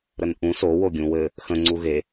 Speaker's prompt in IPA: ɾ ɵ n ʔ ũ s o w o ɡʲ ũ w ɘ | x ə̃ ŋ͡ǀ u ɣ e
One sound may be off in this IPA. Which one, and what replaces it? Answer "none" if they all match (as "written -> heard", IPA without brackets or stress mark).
ɵ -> ə